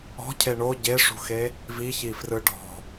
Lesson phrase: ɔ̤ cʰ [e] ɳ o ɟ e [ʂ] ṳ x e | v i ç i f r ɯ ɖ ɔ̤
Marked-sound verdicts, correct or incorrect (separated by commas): correct, correct